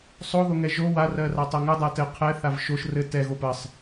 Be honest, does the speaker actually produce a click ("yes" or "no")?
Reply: no